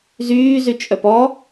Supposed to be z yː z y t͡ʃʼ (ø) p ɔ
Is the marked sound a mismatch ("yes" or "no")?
yes